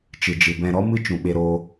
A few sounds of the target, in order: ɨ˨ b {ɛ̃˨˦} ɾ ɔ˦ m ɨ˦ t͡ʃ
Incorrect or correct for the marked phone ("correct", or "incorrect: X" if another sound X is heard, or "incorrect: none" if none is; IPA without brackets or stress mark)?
incorrect: ɛ̃˧